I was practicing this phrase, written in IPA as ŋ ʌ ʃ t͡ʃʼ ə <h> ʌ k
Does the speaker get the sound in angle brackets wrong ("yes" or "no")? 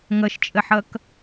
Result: yes